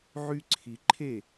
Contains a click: yes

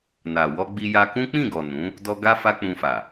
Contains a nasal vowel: yes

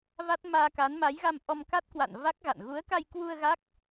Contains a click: no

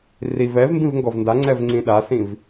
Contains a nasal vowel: yes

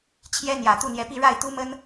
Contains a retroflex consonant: yes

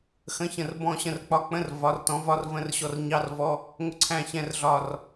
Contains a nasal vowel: yes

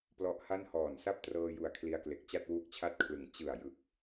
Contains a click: no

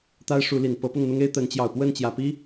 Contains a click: no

